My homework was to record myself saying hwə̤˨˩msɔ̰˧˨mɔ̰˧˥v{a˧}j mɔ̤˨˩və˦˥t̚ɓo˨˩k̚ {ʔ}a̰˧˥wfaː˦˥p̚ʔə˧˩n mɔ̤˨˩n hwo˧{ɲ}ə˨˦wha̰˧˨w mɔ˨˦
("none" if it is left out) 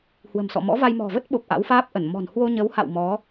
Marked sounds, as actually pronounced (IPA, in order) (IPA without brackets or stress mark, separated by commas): a˧, ʔ, ɲ